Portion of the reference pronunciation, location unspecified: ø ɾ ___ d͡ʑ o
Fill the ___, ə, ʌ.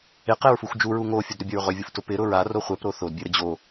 ə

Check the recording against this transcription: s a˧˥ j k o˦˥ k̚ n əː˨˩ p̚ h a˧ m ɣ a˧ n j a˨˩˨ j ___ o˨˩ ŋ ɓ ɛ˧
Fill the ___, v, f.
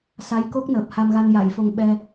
f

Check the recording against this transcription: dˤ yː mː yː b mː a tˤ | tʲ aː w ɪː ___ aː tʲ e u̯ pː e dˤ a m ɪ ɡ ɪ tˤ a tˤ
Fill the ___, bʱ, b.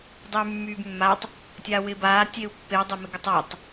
b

